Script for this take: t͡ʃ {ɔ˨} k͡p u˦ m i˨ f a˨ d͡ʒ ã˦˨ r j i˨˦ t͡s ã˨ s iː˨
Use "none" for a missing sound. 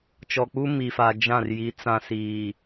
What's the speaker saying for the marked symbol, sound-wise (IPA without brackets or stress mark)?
ɔ˨